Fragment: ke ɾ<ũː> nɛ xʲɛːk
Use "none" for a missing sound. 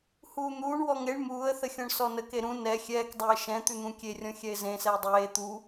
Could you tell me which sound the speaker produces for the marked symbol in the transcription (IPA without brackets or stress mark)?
ũ